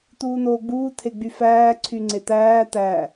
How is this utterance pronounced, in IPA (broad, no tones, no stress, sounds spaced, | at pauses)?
t̪ uː n̪ oː ɡ͡b uː t̪ʰ e ɡ͡b y f æː ǀʰ y ŋ͡ǀ e t̪ æː t̪ æ